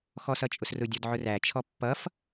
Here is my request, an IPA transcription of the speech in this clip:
xɔsʌt͡ʃʼʊsrʊ dʲɔdʕʊræ t͡ʃʰɔpːʌf

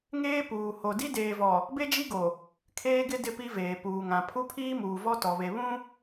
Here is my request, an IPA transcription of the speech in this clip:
ŋeː˦ puː˨ho˨ di˦deː˨vɔ˨ | be˦d͡ʒi˦ɡo˨ | kʰeː˦ɡɪ˦ dɪ˦pi˦veː˨ puː˨ŋã˨ pʰu˦pʰiː˦muː˨ vɔ˦tɔ˨βe˨ βũ˦

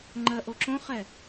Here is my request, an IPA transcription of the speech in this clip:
ŋ͡ǃɜʔoǁõχɛ

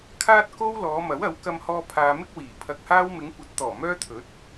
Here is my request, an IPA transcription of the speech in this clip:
kʰaː˥t̚ko˥w lɔː˨˧mɐ˨˥wɐ˨˥w kɐ˧mhɔː˧ pʰaː˨mɪ˥k̚ wiː˨˩ pʰɐ˧k̚haː˥w mɪ˨˧ŋkʷɐ˨˥t̚t̪ɔː˨˩ mœː˥t̪ʰɵ˨˥t̚

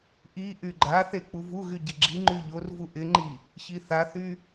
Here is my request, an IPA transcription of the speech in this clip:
ʔi ʔyɡ͡ǃaθe k͡puvuɣy ɟɪɡ͡ǁiŋ͡ǃy ʎorvu ʔɪŋ͡ǃi | çiθaθy

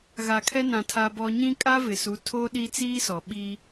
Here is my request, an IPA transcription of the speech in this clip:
ɣa˨kʰɛ˦nã˨ tʰa˦bɔ˦ ɲĩ˦kʼa˦vɪ˨su˨˦ tʰo˦ɗi˦ t͡siː˦sɔ˨ɓiː˦

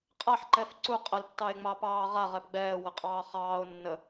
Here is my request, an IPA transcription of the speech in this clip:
qʼaħǃɛf ǀu qʼəltːɑe̯ŋ͡mɑpɑː ʁaʁɛp ɡ͡bɛːwəqʼɑː χɑːo̯ nːə

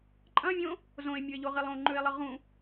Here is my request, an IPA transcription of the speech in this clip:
ǃʼɐ̃vʲõ | zõe̯mʲue̯ʎoʁilˠ õŋ͡ǃʉe̯lˠɨ ʁũ

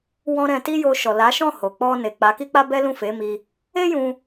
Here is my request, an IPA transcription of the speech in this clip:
wɔ̃˧ ɾɛ̃˧ ti˦jo˧ʃɔ˨ la˨˦ ʃɔ̃˦˨ho˨k͡pɔ˧ ne˨k͡pa˨˦ki˦k͡pa˦ bɛ˦lũ˦˨ fe˨˦mi˧ | e˦ jũ˧

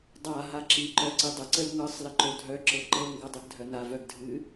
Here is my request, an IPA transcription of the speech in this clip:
dˤa ɦaǁi ǃœǀidˤə ǀəlŋɤsˤ ləǃodʱœ ǁɤǃɤŋ ɡɤdˤɨɡdʱœna vœɡdʱɨ

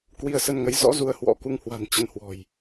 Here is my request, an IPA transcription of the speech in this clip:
kwi˧ə̯sə˧nŋə˨˦j zɔ̰˧˥ zu˧ə̯hwɔ̰˧˥ku˧ŋhwa̤˨˩n t͡ɕə˧nhwɔ̤˨˩j

